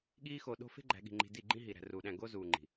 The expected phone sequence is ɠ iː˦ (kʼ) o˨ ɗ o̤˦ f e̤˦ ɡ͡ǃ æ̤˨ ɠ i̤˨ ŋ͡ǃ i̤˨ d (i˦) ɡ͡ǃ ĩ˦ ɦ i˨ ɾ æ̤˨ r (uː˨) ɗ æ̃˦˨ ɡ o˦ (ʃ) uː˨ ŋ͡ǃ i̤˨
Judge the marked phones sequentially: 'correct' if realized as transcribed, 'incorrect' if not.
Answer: incorrect, incorrect, correct, incorrect

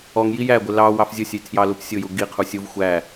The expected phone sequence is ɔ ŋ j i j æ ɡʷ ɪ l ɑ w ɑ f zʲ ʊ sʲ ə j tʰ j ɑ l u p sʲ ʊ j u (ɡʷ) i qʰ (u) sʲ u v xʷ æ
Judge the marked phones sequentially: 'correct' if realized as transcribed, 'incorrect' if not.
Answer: incorrect, correct

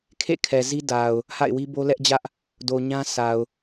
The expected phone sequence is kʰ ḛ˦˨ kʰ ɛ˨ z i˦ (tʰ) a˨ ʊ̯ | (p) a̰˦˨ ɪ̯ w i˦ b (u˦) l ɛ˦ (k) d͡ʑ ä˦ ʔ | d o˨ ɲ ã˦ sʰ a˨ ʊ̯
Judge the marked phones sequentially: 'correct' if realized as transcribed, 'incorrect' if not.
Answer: incorrect, incorrect, incorrect, incorrect

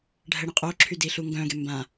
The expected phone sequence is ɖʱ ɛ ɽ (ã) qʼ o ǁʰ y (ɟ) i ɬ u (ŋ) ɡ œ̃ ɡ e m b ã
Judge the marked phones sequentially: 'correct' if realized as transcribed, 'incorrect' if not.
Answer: incorrect, incorrect, correct

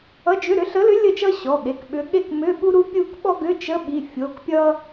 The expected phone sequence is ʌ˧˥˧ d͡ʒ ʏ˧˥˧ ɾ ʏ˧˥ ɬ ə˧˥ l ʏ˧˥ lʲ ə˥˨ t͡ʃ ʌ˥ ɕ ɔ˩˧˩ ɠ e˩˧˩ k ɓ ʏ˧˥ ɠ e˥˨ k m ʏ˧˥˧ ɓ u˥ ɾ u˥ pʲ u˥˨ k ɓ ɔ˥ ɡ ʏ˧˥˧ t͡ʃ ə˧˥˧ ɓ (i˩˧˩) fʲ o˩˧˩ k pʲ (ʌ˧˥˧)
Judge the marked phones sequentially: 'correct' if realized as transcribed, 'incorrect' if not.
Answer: correct, incorrect

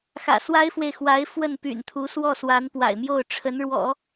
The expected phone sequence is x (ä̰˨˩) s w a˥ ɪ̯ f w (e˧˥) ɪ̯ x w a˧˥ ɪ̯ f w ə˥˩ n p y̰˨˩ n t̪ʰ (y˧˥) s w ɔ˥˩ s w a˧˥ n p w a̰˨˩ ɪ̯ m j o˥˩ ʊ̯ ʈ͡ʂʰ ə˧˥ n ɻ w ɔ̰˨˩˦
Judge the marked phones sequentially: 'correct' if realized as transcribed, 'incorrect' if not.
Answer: correct, incorrect, incorrect

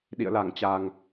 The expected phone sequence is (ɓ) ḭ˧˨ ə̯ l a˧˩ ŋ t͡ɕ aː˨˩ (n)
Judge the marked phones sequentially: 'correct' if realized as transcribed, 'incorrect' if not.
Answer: incorrect, incorrect

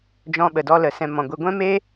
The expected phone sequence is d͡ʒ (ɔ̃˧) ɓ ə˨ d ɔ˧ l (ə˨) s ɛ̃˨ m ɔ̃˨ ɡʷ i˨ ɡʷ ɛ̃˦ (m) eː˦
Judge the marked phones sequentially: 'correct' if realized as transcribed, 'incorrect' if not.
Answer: correct, correct, correct

